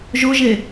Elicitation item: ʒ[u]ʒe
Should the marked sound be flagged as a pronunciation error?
yes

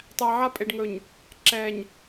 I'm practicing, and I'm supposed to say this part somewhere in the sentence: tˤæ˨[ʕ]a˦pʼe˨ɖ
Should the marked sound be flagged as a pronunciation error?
no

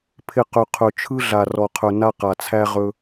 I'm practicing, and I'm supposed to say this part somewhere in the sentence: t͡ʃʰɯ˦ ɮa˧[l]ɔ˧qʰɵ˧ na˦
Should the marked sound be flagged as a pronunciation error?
yes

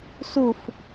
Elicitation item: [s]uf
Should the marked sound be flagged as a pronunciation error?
no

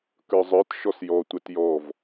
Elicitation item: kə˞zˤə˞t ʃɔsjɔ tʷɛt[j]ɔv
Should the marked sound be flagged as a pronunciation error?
no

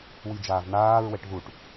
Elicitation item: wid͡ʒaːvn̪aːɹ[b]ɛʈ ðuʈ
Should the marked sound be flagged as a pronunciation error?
yes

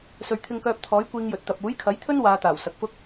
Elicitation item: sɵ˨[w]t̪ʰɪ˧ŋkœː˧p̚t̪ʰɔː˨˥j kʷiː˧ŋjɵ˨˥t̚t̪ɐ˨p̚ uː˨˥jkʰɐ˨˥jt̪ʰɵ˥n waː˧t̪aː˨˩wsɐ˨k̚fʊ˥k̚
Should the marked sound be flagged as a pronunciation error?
yes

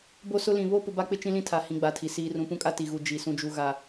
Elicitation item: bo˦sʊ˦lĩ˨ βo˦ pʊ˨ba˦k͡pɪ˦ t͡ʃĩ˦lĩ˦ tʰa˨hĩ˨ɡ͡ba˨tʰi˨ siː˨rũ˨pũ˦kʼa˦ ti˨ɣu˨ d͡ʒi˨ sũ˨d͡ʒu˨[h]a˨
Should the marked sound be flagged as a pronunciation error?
yes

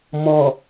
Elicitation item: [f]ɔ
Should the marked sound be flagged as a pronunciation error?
yes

